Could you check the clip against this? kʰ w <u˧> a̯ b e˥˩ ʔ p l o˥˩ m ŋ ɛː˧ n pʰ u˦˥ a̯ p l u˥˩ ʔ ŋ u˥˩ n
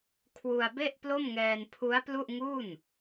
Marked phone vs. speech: correct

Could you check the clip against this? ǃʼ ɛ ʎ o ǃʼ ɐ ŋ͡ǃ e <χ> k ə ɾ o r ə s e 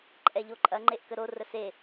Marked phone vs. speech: incorrect: ʔ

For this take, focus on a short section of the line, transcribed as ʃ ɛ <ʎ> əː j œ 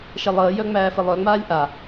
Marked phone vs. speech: incorrect: lˠ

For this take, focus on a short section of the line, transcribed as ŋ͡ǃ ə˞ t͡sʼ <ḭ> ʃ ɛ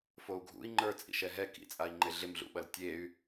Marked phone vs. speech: correct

